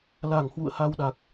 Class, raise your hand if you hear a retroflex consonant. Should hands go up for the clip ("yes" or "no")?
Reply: no